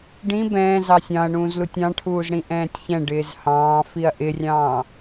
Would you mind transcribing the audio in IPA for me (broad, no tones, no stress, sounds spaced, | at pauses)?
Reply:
ɖ ĩ b ɛ̃ː z ɑ sʲ ɑ̃ ɐ̯ ɳ ũː z l u tʲ ɑ̃ ʈʰ uː z ɽ ĩ ʔ ɛ̃ː tʲ ç ɛ̃ ɖ ɪː z h ɑ̃ː f i ɐ̯ ʔ ɪ rʲ ɑ̃ː